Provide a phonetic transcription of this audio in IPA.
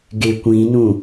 ɡ e kʷ ĩ n ũ

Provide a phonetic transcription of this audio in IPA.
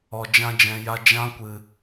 ɔ˨ d͡ʒ ã˧ d͡ʒ ɛ̃˨ j a˧ d͡ʒ ã˧ kʷ ɨ˨

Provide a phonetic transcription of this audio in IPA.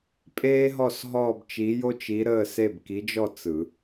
pʼ eː˥ ɦ ɔ˥˨ s ɦ ɔː˥˨ b t͡ʃ i˧˥ j o˥ t͡ʃ i˧˥ ɾ əː˥˨ s e˥˨ b k i˧˥ d͡ʒ ɔ˥˨ t͡s ɯ˨˩˦

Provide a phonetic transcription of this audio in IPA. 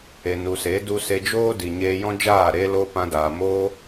e˨ n u˨ s e˨˦ d u˧ s e˧ d͡ʒ oː˦ d i˨ ɲ eː˧ j ɔ̃˦ d͡ʒ aː˦˨ ɾ e˧ l o˧ p ã˧ d aː˨ m oː˦

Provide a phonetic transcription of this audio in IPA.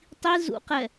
tˤ i z ṵ q ɛ

